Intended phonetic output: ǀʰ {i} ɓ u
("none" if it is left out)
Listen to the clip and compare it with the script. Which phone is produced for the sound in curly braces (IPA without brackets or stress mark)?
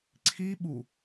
i